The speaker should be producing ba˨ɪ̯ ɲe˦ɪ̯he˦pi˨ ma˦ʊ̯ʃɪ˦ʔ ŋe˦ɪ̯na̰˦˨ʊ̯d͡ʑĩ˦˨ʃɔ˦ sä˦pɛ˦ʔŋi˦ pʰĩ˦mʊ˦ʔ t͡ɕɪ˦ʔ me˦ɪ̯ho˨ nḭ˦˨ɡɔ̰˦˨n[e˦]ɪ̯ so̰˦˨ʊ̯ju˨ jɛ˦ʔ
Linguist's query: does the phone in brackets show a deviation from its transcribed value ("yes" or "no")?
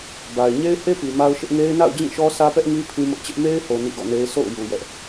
no